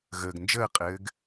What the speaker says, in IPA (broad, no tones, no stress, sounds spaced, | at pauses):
ɣ əː ɡ n d͡ʒ əː qʼ ɘː ɡ